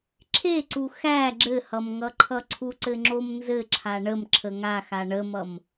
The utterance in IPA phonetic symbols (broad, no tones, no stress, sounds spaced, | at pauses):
ǁʰ e ǀ u x æ ɡ͡ǁ ɘ h ʌ m ŋ ʌ ǃʰ ʌ ǀʰ u ǀ ɘ ŋ͡ǁ o m n z ɘ ǁʰ a ɳ ə m ǁʰ ə ŋ a x a ɳ ə m ʌ m